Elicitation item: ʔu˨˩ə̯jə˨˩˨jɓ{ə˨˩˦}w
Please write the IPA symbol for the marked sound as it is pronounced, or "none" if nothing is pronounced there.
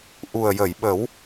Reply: ə˨˩˦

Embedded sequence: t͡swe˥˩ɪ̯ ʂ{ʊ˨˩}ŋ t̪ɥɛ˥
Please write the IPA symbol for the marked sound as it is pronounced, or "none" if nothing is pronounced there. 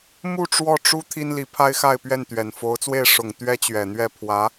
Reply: ʊ˨˩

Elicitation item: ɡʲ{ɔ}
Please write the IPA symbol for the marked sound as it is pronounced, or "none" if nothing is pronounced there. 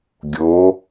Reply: o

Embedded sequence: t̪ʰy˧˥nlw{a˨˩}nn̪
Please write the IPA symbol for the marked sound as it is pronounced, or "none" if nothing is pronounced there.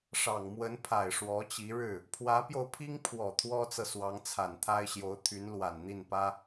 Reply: a˨˩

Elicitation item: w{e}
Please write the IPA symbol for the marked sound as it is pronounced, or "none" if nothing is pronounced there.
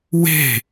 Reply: e̤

